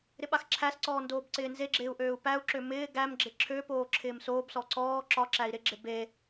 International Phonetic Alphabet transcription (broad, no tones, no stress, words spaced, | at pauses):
ɾɪɓaxǁʰæsǀɔː ndoːbǀɪːnzeɡ͡ǁɪːu̯ ʔøːu̯pæu̯ǁø mɪː ɡæmɡ͡ǁɪ ǁʰøpoː ǁʰɪːmsoːbsɔ ǀɔː ǁɒǁæi̯ ɾɪɡ͡ǁɪ be